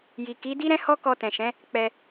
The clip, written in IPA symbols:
j i˨ k i˨˦ d i˦ ɾ ɛ̃˦ h ɔ˦ k ɔ˧ t ɛ̃˨ ʃ ɛ̃˨˦ | k͡p ɛ˧

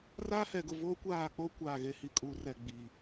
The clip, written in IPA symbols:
r aː˦ h ɛ˨ ɡ ʊ˦˨ v o˦ kʷ aː˦˨ k͡p o˦ kʷ aː˦˨ ɣ e˦ h i˦˨ kʼ uː˦ r ɛ˦˨ ɡ͡b i˨

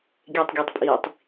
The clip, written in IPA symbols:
ɡʲ e tˤ ɡʲ u tˤ pʼ iː tˤ

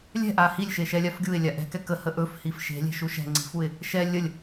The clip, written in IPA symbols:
lʲ ɛ̤ ʔ a h i lʲ ʃ e ʃ ɛ lʲ a f ɡʲ u ɪ̯ lʲ a ʔ ɛ̤ k ɛ k ə h ə ʔ ɵ f h i f ʃ e̤ lʲ e̤ ʃ u ʃ ɛ̤ ŋ͡ǀ i̤ f u ɪ̯ | ʃ ɛ lʲ ə lʲ

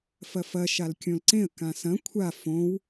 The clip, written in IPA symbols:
f ɐ f ɐ ʃ a l kʲ õ l ǀ ẽ ə̯ k ã s ɐ̃ kʷʰ a f õ w

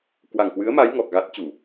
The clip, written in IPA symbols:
k w a˨˩ ŋ k w ɨ˨˦ ə̯ m a˨˦ j ŋ ɔ˨˩ k̚ ɣ a˦˥ t̚ t͡ɕ u˧˩˨

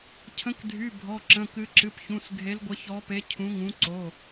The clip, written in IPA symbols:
cʰ ə̃˨˦ k dʱ y˩˧˩ bʱ ɔ˩˧˩ ǁ ə̃˩˧˩ k ɨ˨˦ ǁ ɨ˩˧˩ p ç ũ˩˧˩ s ɡʱ e˨˦ l ɡʷ ə˨˦ ç ɔ˨˦ p e˨˦ cʰ ũ˨˦ ŋ ũ˨˦ ǀ o˩˧˩

